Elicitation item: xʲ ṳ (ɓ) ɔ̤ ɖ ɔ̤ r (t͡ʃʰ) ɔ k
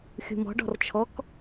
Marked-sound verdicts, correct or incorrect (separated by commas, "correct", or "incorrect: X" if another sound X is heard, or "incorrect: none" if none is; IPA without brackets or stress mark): incorrect: m, correct